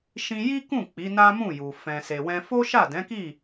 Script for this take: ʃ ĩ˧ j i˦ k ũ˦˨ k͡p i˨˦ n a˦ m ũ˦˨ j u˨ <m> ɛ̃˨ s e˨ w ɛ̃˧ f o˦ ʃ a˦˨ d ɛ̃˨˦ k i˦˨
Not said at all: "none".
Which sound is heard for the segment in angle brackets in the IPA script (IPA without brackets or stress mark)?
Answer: f